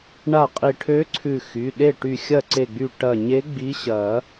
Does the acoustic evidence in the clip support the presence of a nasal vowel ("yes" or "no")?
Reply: no